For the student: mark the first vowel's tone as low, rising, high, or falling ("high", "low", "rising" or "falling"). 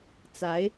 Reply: rising